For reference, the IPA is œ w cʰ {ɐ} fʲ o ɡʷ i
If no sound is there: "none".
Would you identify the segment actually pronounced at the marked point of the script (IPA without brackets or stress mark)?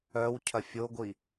ɐ